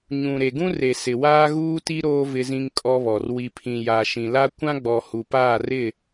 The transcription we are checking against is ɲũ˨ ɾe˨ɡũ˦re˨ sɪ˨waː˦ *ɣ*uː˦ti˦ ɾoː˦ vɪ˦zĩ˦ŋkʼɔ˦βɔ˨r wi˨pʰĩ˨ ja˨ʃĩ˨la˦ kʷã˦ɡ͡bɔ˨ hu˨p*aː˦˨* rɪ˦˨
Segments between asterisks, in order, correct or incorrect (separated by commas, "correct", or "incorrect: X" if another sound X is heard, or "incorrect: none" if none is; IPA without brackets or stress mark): correct, correct